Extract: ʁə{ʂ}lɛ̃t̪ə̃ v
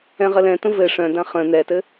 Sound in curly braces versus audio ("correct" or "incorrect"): incorrect